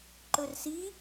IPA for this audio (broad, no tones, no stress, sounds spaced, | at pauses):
ǃ ɵ r s i